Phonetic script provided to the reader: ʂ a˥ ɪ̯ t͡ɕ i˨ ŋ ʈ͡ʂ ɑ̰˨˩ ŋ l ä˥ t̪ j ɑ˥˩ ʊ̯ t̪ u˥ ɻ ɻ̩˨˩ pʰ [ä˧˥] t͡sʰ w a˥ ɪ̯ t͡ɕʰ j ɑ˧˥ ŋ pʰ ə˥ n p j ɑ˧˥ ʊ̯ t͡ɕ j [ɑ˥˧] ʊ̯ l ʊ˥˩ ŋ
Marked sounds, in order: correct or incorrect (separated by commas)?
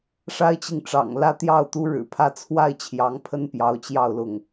incorrect, correct